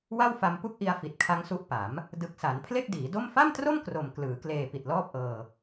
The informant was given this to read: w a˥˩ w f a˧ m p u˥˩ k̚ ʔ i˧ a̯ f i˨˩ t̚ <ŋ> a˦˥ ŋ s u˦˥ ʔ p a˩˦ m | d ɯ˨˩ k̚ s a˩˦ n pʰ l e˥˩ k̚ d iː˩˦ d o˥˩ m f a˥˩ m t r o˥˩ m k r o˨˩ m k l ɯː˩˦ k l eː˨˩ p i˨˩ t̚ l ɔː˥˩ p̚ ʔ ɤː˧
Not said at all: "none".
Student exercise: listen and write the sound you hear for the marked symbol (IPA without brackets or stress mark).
kʰ